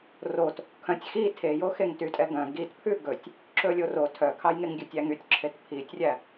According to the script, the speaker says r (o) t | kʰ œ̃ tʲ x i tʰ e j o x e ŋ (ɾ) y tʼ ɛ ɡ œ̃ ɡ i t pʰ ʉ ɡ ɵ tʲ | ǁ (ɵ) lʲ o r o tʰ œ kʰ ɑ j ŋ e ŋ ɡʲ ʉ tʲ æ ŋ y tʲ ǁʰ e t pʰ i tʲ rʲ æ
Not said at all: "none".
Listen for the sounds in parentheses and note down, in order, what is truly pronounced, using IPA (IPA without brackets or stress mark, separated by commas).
o, t, ɵ